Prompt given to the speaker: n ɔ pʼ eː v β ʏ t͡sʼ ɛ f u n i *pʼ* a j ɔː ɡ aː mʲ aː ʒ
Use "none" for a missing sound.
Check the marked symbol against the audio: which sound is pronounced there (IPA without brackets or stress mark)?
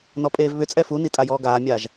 tʼ